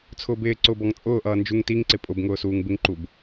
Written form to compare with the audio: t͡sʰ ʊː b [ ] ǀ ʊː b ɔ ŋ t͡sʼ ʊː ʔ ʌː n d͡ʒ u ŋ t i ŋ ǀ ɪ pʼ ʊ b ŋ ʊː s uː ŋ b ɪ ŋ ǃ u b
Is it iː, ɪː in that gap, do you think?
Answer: ɪː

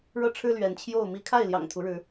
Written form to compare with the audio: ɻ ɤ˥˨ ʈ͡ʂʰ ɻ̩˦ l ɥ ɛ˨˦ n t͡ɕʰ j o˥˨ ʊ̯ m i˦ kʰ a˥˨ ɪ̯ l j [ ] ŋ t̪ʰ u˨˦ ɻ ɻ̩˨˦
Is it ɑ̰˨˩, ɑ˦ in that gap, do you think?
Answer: ɑ̰˨˩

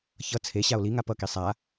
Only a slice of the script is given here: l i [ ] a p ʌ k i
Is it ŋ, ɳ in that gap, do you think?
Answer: ŋ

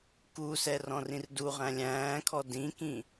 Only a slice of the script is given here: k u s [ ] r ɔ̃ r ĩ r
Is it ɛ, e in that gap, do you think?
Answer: ɛ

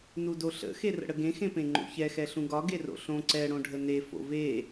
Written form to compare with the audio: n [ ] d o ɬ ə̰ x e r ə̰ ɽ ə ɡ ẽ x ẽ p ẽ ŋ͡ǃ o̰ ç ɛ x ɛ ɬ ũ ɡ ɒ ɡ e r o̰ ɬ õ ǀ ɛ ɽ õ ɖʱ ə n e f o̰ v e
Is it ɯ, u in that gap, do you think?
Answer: u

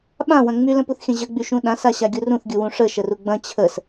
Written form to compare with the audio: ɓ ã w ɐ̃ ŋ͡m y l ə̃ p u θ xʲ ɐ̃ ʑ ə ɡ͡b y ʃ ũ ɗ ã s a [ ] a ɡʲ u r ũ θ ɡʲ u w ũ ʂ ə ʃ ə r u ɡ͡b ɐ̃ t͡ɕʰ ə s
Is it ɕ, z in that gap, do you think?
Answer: ɕ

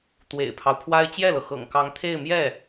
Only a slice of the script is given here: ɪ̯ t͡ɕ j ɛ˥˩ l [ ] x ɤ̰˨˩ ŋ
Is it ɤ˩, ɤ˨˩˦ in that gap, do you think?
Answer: ɤ˩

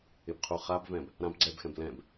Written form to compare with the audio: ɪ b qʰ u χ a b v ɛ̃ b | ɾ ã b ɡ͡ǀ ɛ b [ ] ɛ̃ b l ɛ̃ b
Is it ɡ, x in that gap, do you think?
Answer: x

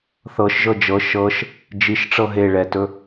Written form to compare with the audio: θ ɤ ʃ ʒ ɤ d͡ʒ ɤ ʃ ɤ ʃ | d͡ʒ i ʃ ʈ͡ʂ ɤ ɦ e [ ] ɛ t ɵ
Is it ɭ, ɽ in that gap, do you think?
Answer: ɭ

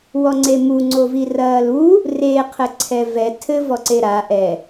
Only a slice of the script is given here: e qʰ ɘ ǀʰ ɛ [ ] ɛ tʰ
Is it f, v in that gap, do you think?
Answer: v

